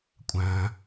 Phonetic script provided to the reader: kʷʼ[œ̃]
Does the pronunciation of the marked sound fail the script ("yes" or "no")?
yes